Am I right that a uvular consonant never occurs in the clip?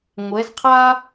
no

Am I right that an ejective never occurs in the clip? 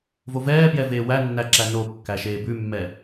yes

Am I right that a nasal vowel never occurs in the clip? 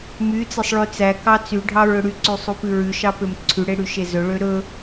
yes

